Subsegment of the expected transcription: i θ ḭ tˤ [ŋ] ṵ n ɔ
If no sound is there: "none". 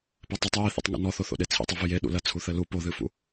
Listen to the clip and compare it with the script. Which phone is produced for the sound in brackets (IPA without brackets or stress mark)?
ŋ